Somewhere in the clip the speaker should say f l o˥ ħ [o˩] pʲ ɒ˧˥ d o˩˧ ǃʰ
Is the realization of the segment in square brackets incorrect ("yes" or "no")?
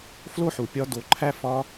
yes